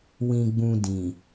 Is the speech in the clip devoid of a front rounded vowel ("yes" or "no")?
yes